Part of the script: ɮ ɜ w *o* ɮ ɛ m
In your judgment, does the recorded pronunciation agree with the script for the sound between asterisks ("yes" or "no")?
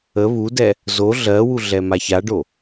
no